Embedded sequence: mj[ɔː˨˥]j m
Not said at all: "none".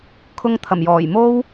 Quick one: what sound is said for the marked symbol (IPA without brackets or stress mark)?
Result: ɔː˨˩